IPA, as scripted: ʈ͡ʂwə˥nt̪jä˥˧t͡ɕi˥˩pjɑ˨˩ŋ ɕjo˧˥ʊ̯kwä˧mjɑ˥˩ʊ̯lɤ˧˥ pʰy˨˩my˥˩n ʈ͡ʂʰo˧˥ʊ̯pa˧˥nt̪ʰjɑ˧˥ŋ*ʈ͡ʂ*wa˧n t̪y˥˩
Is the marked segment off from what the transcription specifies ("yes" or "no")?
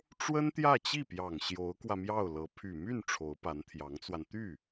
yes